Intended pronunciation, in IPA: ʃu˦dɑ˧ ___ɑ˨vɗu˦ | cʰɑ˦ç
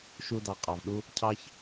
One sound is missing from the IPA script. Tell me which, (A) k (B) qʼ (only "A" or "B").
B